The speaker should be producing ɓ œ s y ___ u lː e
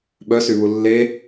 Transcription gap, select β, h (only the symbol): β